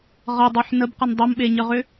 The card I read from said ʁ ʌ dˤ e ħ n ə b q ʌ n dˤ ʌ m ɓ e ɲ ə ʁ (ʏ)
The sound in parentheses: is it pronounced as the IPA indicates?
yes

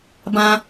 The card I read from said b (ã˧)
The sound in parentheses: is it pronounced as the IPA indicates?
yes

